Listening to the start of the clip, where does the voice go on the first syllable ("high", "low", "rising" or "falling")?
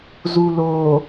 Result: low